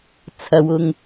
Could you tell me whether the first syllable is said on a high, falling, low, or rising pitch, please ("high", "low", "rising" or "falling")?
low